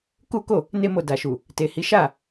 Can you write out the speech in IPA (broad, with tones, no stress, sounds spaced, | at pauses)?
k u˦ k o˦˨ | n e˧ m o˨ d a˨ ʃ u˨ | t e˨ h i˨˦ ʃ a˦˨